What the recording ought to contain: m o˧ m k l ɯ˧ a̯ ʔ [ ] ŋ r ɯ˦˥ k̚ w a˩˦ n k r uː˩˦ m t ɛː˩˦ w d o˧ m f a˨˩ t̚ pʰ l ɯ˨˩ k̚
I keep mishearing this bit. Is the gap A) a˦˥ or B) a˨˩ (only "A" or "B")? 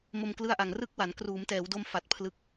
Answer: B